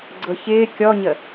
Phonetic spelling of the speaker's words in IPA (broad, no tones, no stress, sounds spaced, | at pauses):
ɡ͡ǀ ɤ ç ɪː kʲ ɔ ɲ ə